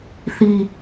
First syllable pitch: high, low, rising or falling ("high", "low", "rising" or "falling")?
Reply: low